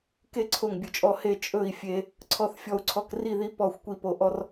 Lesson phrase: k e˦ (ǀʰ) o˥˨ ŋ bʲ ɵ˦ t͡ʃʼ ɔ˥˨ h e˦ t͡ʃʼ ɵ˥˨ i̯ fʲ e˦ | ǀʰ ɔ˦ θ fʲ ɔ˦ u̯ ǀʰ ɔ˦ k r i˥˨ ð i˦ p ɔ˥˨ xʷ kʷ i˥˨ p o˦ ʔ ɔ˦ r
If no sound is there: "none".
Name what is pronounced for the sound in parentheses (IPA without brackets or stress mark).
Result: ǀʰ